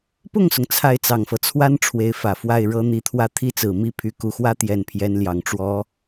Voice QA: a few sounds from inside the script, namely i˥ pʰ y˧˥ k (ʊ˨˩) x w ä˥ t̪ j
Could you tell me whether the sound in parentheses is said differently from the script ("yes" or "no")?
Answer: yes